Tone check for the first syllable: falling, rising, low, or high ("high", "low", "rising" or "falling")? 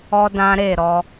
high